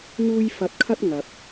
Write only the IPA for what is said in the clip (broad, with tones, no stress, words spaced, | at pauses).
ŋuː˥j fɐ˧t̚kʰɐ˥t̚ ŋɐ˨p̚